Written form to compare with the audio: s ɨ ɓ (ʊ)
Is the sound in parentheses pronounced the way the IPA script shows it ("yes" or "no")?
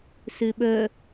no